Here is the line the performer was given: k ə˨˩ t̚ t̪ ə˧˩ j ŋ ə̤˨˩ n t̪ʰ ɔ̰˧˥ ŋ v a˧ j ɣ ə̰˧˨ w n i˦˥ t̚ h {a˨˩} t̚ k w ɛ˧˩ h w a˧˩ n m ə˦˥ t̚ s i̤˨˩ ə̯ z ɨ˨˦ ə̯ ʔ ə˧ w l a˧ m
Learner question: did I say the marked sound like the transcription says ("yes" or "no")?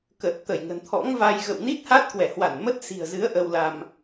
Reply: no